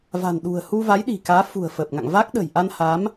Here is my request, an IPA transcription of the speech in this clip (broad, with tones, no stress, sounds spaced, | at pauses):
v a̤˨˩ n ɗ ṳ˨˩ ə̯ h u˧ v a˨˦ j ɗ i̤˨˩ k aː˨˦ f ṳ˨˩ ə̯ f əː˨˩ p̚ ŋ a̰˧˨ ŋ v a˦˥ k̚ ɗ ə̤˨˩ j ʔ a˧ n h a˨˦ m